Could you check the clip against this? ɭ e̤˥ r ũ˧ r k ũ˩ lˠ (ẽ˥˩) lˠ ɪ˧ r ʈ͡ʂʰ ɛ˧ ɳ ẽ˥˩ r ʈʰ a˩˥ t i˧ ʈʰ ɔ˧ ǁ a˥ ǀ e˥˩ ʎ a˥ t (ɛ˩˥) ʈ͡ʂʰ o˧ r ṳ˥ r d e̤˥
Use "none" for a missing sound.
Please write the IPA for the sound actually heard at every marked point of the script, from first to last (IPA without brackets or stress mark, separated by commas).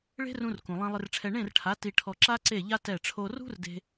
ẽ˧, ɛ˥˩